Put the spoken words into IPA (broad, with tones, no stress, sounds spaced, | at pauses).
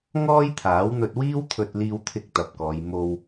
ŋ ɔː˥ j t̪ʰ aː˨˥ w n̪ ɵ˧ t̚ w iː˥ w t̪ʰ ɵ˧ t̚ l iː˧ w t̪ʰ ɪ˧ k̚ t̪ ɐ˨ p̚ k ɔː˨˧ j m o˧ w